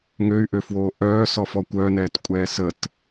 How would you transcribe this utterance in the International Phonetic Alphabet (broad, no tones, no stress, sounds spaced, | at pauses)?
ŋ ø y̯ ʔ ø f w oː ʔ œː s ɔ f ɔ kʷ œ n ɛː t kʷʼ ɛː s ə t